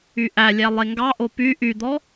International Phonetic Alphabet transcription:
y ʔ æ lʲ æ lˠ e ŋ ɡ ɑ ʔ o p y ʔ y d̪ ɔ

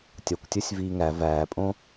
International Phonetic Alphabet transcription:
tʲ ɒ kʷ tʲ o sʲ v iː ŋ æ v æː pʼ õ

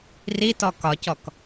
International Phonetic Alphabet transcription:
r i t ɔ k ɒ c ɔ k

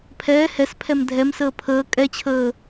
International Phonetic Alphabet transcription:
pʰ ɛː h ɛ s pʰ ɛ m dʱ ɛ m s əː pʰ əː kʼ ɛ t͡ɕʰ əː

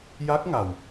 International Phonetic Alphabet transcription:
j a˦˥ k̚ ŋ a˨˩ w

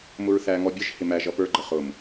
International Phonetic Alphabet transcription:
m ʊ ɹ θ æ ŋ ɔ bʲ ə ʒ h ɪ m æ ʒ ʌ p ə˞ ɡ͡ǃ ə χ ʊ m

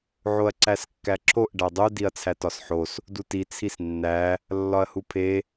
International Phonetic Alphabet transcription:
ʕ o ɐ̯ ǀ æ s kː æ ǁ o ʔ ɖ æ dˤ u d i ɐ̯ t͡sʰ æ t ɒ s ħ o s | d u t i t͡sʰ i s nː æ | lː ɒ ɐ̯ h u pʰ e

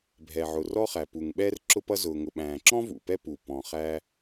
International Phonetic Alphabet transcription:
bʱ ɛ˩ ʕ ʊ˩ r ɔ˥ χ æ˩ p u˩ ŋ ɓ ɛː˥ r ǁ ʊ˥ p ʌ˥ z ʊː˩ ŋ ʊ˩ ɓ æ̃ː˩ ǁ ɔ̃˥ v ṵ˩ p ɛ˥ p u˩ p ɔ̃˩ χ æː˥

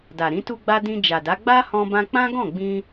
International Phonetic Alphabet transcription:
d a˨ ɾ ĩ˨˦ t u˧ ɡ͡b a˧ d ĩ˧ d͡ʒ a˨ d a˨˦ ɡ͡b a˦ h ɔ̃˧ b ã˧ k͡p ã˦ ɡ ɔ̃˦˨ ɡ͡b ĩ˧

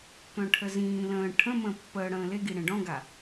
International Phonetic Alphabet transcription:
k œ̃ ʈʰ ə z ĩː l ə̃ː ʈʰ ə̃ m ə̃ː pː əː ɽ ə̃ː l e ɡ i ɽ ẽ ɖ ɔ̃ ɡ a

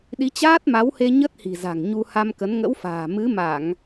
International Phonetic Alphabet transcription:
ɗ i˨˦ t͡ɕ aː˦˥ t̚ m a˨˦ w h e˧ ɲ ə˦˥ t̚ h i̤˨˩ z a̤˨˩ ŋ ɲ u˧ h a˧ m k ə˨˦ n ŋ ə̰˧˥ w f a̤ː˨˩ m ɨ˨˦ m a˧˩˨ ŋ

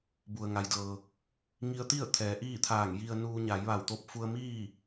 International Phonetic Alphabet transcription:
b u˩ ə̯ ŋ a˩ j d ɤː˩ | ŋ i˧ ə̯ t̪ i˥˨ ə̯ t̪ʰ ɛː˩˧ ʔ iː˥˨ t̪ʰ aː˧˩ ŋ j i˧ ə̯ n uː˧ ɲ a˩˧ j ʋ a˧˩ w t̪ o˧ p̚ f u˧ ə̯ m iː˥˨

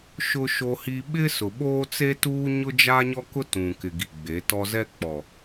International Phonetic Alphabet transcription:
ʃ ʊ˦ ʃ o˦ h i˦ ɓ ɪ˦ s ʊ˨ ɓ oː˦ t͡s e˦ t uː˦ ɲ ʊ˦ d͡ʒ a˦ ɲ ɔ˦ k ʊ˦ t ũ˨ k ɪ˨ ɡ i˨ ɡ͡b e˨˦ t ɔ˦ z ɛ˦ k͡p ɔ˨

